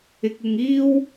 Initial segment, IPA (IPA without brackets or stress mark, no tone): ɪ